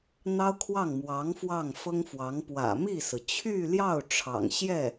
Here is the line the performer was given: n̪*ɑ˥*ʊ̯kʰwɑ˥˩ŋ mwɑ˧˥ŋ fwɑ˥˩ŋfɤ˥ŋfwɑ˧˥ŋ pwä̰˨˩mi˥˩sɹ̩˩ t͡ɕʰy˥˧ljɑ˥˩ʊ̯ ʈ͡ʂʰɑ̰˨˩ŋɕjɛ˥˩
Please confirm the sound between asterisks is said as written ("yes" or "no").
yes